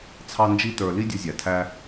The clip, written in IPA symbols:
t͡sʰɑ˧nd͡ʒi˧tə˞˨ li˦dʲʌ˧zʲæ˨ tʰæ˧

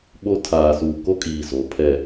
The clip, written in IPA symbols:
ɓo˦ tʰaː˨suː˨ko˦kʼiː˨ zo˨˦ pʰɛ˨

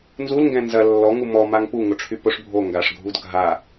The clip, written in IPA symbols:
nzulŋɡɛ̃ nzɐ lːɔŋu mɔmaŋ puŋʊʈ͡ʂʰy pʊʂ bʱo ŋɡaʂɡʱud ɡʱa

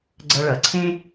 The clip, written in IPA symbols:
ɡ͡ǀʌ˧ɭʌ˩˥ǀʰẽ˥

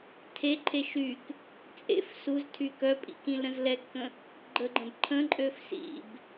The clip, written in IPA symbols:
tʰeǃʰe ʃyk | t͡sʼḛf suztʰy kœpʼḭ kĩlɾə̃zlɛkːə̃ | ɡ͡ǃəɡ͡ǃə̃b ǃʰə̃ǃʼøf sḭb

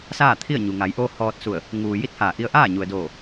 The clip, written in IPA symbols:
saː˥˨t̪ʰi˥˨ə̯ɲu˩ ŋa˩˧jʔoː˧ hɔː˧t̚su˧˩ə̯ | ŋuː˩ ji˥˨t̚haː˧˩ ʔi˧ə̯ʔaː˥˨ɲu˩ə̯doː˧˩

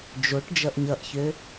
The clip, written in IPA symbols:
d͡ʒoʈ d͡ʒʌʔɲʌʔçø

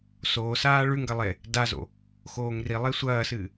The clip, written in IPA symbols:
soːsaː ɭʉŋɡɐ lˠe | dazo̰ | xoːŋrilˠe sʷɐːsɨː

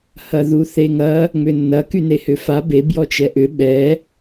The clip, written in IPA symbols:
hɐðuθeŋɐ | ŋ͡mʏnːɐ kynehʏfa be bjɔt͡ʃɛʔʏ ɓɛ

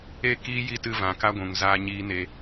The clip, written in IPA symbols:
e˦˨ kiː˦ji˦ tɨ˧ vã˨ka˦ɡʷũ˨ŋ zaː˦ɲiː˦ne˧

